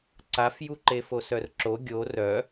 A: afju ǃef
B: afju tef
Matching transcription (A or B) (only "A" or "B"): A